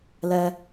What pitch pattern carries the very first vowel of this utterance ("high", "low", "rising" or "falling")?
high